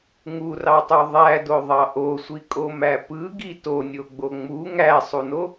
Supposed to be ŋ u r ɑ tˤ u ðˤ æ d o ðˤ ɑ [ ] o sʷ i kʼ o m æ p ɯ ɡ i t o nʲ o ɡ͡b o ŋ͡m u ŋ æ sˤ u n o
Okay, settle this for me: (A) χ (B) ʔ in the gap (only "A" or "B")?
B